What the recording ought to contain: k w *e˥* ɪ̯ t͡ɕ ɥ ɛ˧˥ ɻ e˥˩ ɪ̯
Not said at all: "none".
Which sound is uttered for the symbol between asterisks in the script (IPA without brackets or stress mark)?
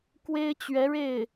e˥